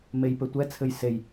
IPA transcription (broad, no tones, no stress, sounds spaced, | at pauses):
m e j p ɘ tʷ ɛ t͡sʰ ɘ j s e j